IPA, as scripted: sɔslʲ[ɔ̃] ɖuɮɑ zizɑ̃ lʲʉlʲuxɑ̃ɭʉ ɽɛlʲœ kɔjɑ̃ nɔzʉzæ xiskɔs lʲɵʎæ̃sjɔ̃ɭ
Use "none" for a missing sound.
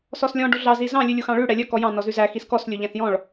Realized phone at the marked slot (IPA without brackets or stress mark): ɔ̃